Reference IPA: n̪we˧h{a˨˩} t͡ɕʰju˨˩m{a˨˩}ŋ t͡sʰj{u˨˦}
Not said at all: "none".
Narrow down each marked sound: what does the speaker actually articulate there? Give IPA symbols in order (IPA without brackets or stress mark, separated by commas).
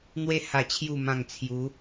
a˨˩, ã˨˩, u˨˦